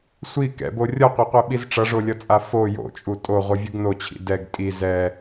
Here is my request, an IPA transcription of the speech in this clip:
sʷi kɛ̰bo rʲʌqʷeqʷeɓiz ʈ͡ʂʌʐolʲʌt͡sʼa fo jo̰t͡ʃʼu tʼoʁʷɯvʲɯɡ not͡ɕʰḭ dɛɡ tʼi zɛ

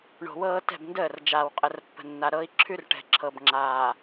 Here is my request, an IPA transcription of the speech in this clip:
ɳo̤˨wɤː˦ tɛ̤˦˨bndəː˦˨r d͡ʒaː˨wqʼə˨rpːə̤˨nːa˨ ɾɤ˦i̯ ǁʰʉ˦rʈɛ̤˨ ǁʰɤ˨bŋ͡ǁaː˨

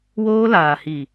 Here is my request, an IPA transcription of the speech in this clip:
woː˦laː˨hi˨

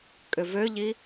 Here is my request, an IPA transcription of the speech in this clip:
kʼʏvøʎi

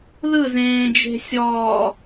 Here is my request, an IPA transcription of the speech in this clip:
ðɯzẽːd͡ʒe̤ sʲɔː

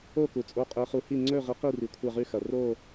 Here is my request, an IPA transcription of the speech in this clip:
o˥˨ku˩t͡sʼo˨˥ qʼe˨˥χu˨˥hi˥˨ ŋ͡ǀɵ˥˨ ʁi˨˥qi˥˨ri˩ kʷʰa˥˨ʁʉ˥˨xɐ˩ ro˥˨

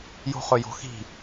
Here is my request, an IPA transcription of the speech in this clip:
jo̤χɵjo̤xi̤

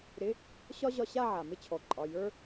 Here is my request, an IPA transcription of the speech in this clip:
ɾɪ˧˥˧ | ɕɒ˥ʑɒ˧˥˧ɕa˥˧ ʕa˩ mɪ˥˧t͡ɕʰɔ˩˧˩ǃʼɒ˩˧˩ jə˞˥

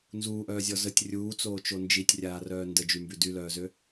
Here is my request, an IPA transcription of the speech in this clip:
nzuːʔœːzʲɔ zətʲ rʲuːt͡soːt͡ʃo nd͡ʒitʲrʲaːrœː ndəd͡ʒymby dylœːzø

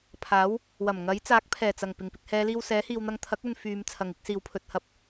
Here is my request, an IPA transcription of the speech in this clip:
pʰaː˨˥w | wɐ˨˩m ŋɐ˨˥j t͡saː˨˥k̚pʰɛː˨˩t͡sɐ˨˩ŋ pɪ˨˩ŋpɪ˨k̚hɛː˨˧liː˧w sɛː˨˥hiː˨wn̪ɐ˧ŋ t̪ʰɐ˨˥k̚ɵ˨n fyː˨˧m t͡sʰɐ˨ŋɪ˨˥k̚siː˨wpʰɵ˧t̚ hɐ˨p̚

